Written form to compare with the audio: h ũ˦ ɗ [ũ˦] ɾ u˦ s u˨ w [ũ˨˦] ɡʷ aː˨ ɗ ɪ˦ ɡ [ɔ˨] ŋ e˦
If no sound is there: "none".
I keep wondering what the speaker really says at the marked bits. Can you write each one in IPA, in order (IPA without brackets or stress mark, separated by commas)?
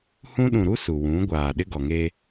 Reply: ũ˨, ũ˨˦, ɔ˨